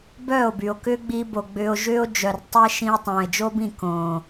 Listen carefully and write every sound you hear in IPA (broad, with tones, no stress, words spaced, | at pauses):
bœː˦˨o̯by˨o̯ kʏː˦ɡ͡bi˧bo˨ ɡ͡bʏː˧o̯ʒʏː˦o̯ d͡ʒœ˨rtˤɛ˦ ʃĩ˧o̯ tˤõː˨e̯d͡ʒo˦bĩ˦˨ kõː˨